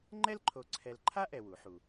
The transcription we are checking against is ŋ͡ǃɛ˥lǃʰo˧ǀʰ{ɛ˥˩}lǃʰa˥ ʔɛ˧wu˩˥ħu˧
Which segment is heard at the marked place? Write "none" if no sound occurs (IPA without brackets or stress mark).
ɛ˧